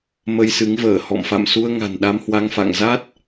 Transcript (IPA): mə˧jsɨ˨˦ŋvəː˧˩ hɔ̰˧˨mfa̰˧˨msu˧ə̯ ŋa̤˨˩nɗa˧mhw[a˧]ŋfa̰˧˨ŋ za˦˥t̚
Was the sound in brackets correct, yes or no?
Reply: yes